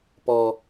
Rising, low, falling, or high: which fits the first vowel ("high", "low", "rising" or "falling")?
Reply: high